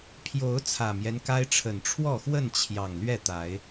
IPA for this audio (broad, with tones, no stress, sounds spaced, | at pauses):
pʰ j o˨˦ ʊ̯ t͡sʰ ä˨˩ m j ɛ˦ n k a˦ ɪ̯ ʈ͡ʂʰ ə˨˩ n ʈ͡ʂʰ w ɔ˥˨ x w ə˥˨ n t͡ɕʰ j ɑ˨˩ ŋ l ɥ ɛ˥˨ t̪ a˨˦ ɪ̯